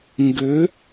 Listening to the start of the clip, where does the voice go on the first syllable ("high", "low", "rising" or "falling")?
rising